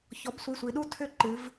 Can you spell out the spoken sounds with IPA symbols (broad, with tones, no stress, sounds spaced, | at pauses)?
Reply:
ç ɔ˩˥ b sʷ i˩˧˩ sʷ i˩˧ ɗ u˥˨ tʰ ʏ˥˨ ǃ ɨ˩˧ v